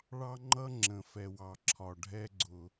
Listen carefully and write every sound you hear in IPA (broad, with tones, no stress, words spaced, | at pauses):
ɭɑ˦ŋ͡ǃʌ˦ ŋ͡ǁə̃˨ fɛ˨wɑ˨ǁʰɒ˨ ɖʱɛ˦ɡ͡ǀʊ˨